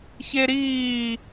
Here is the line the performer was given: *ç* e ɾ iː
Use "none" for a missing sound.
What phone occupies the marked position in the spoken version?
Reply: ç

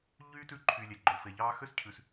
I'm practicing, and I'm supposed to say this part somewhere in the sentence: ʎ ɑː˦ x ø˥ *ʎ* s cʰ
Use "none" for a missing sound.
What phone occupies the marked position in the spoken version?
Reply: none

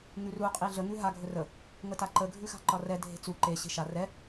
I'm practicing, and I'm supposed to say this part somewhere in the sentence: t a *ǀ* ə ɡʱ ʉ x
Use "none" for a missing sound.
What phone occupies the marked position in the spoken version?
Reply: ǃ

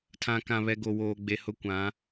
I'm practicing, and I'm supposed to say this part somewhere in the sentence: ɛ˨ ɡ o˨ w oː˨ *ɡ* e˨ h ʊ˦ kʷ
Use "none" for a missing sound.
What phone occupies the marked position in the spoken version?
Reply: ɡ͡b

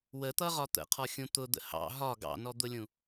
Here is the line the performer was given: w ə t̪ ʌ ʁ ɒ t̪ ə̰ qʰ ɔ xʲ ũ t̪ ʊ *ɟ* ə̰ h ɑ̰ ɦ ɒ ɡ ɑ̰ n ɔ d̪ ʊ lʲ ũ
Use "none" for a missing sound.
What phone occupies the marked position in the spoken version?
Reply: d̪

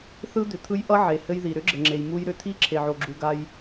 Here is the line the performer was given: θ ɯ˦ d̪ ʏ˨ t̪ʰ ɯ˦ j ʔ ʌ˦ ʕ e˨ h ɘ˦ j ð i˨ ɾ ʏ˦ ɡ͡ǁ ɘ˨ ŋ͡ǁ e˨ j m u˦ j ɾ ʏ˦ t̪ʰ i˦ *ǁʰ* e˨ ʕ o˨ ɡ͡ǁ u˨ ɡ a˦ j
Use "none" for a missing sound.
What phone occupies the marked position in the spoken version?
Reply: ǁʰ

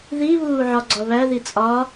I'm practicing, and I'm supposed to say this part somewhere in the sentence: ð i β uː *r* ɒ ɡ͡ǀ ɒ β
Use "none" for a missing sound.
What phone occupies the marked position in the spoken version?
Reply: ʕ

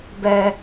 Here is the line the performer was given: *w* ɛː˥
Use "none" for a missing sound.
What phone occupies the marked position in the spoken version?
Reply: b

